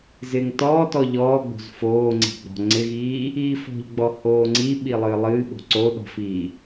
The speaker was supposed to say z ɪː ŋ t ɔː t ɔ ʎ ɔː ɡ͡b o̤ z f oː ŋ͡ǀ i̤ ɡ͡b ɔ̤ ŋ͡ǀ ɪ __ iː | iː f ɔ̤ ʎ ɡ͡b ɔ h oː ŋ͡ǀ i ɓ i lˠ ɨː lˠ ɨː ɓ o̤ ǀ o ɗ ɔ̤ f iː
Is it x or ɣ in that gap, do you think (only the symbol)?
ɣ